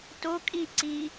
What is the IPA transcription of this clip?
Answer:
t o kʼ i ǀ i

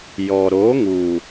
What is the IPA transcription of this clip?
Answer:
j ɔ˨ ɾ o˨˦ ŋ u˨

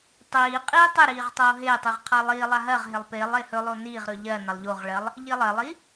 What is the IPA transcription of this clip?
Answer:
tˤ iː qʼ iː tˤ ɪ ɾ iː ʁ tˤ oː ɦ ɪː tˤ i ʁ qʰ a lˠ iː lˠ a ɦ ɜ ʁ ɦ ɪ lˠ p ɪː lˠ ɪː h ɵ lˠ o n iː ʁ ɾ ɵ ʎ ɜ n a lˠ ʎ o ʁ ɭ ɜ lˠ | ʎ i lˠ ɜ lˠ i

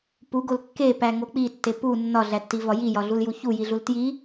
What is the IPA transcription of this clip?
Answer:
p u ɡ o l kː e p æ ŋ o k͡p i tː e p u nː ɒ ɮ æ tː i v ɒ j i j ɒ ɮ u l j u ç u j i ɮ u l t j i

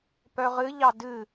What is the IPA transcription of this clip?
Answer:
p œ ʁ ɨ ʎ ɑ d ɨ

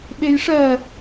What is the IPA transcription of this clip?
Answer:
ɓ e j ʂ ɜ

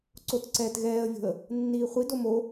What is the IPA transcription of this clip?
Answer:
ǀ o t ǀ ɛː t ɣ ɛː ə̯ vʲ o̤ ə̯ | nː iː χʷ i d o m o

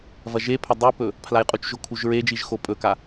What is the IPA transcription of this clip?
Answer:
v ɐ ʒ e pʰ ɐ dˤ u p ɵ | pʰ l a j qʼ u t͡ʃ ʒ o kʰ u ʒ ɹ e d͡ʒ i ʒ x o pʼ ɵ k a

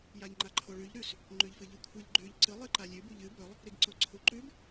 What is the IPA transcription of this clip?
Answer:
j a ʎ ŋ͡ǃ a ǃʰ o ɭ ʉ ʎ ɾ ʉ s | ŋ͡ǃ ʉ ʎ f ɨ ʎ ɨ kʷʰ ɨ ʎ ɡ͡ǃ ʉ ʎ ǀ ɨ lˠ ɨ ǃ a lʲ ʉ b u ʎ ɨ b ɵ lˠ | ɾ i ɡ ǀ o ǀʰ u ǃ ʉ b

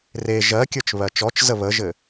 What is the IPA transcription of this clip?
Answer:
r e ʒ ɜ kʲ ə˞ t͡ʃ β ɜ t͡ʃ ɔ t͡ʃ z ə β ə ʒ ɘ

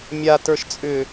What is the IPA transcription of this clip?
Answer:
mʲ a t ə˞ ʃ t͡sʼ ʏ

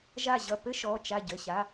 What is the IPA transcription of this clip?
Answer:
ʒ a˧˩ ʑ ʌ˧˩ p ɘ˥ ʃ ɔ˩˧˩ t͡ʃ a˧˩ ɟ ə˩˧˩ ɕ a˩˧˩

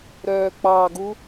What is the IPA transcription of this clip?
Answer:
ɾ œː k͡p ɑ ɡ u

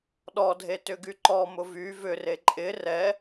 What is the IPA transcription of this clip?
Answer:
ɗ ɔ dʱ e t ʏ ɡ y ǃ ɔ m ʊ v y v ʏ r e ǃʼ ɪ r ɛ

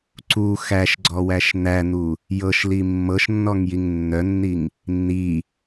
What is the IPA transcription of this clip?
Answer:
ǀ u x æ ʃ ɡ͡ǀ ɔ w æ ʃ n̪ æ n̪ u | j ɤ ʃ l i mː ɤ ʃ nː ɔ ŋ j i ŋ nː œ nː i ŋ | nː i

